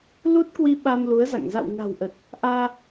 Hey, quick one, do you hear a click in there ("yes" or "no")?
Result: no